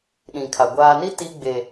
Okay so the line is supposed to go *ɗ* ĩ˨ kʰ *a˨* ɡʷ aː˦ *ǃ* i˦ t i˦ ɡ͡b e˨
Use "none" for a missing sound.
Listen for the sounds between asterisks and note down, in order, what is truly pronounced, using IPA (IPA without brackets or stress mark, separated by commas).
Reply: ɗ, a˨, n